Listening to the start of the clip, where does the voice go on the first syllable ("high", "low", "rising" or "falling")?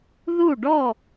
falling